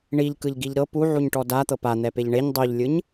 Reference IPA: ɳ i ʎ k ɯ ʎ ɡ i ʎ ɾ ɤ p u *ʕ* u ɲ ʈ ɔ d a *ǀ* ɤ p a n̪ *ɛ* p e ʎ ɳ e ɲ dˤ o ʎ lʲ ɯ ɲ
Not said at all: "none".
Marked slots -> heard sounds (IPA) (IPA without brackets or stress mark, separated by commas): ʕ, t̪, ɛ